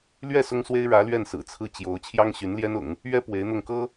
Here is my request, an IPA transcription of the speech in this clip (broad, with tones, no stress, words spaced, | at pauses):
lɥɛ˥˩ sʊ˥ŋswe˥ɪ̯ ɻä˧˥lɥɛ˥˩n sɹ̩˨˩t͡sʰɹ̩˥˩t͡ɕjo˧˥ʊ̯ t͡ɕʰjɑ˥ŋɕy˧˥n ljɛ˥nʊ̰˨˩˦ŋ | ɥɛ˥ pwe˧˥ɪ̯n̪ʊ˥˩ŋ kɤ˥